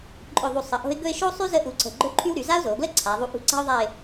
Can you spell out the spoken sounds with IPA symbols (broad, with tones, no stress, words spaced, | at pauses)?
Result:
ǃʼɵ˧˩ðˤu˧˩ sˤə˧˩ʔo̤˥ɪ̯ ɡɵ˥˧ɪ̯ʃo˥sˤy˥ zə˥ʔu˧ǀə̤˧˩ ɡ͡ǃɵ˥ǃʰy˥w ɾy˩˧za˥ʊ̯zo˩˧ɡlə˥ ǀʰa˩˧ ðˤu˧ʔṳ˧ ǀa̤˥ʊ̯ðˤa˥˧ɪ̯